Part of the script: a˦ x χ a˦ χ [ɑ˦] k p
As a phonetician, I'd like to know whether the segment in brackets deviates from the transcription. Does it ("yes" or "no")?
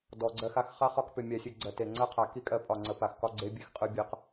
yes